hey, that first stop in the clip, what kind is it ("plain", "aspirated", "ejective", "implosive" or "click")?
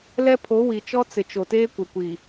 aspirated